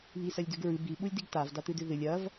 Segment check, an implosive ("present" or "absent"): present